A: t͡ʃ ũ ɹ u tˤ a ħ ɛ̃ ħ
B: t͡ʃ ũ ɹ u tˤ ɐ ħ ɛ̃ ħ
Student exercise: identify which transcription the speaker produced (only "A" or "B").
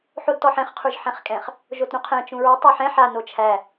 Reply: A